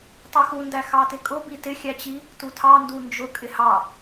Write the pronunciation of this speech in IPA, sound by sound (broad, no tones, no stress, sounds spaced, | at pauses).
tˤ u x u n d æ x ɑ t ɪ kʼ ʊ b i t ɪ xʲ æ t͡ɕ i | t u tʰ ɑ n d u n d͡ʒ ʊ kʼ ɪ h ɑ